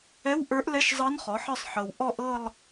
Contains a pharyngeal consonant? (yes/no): yes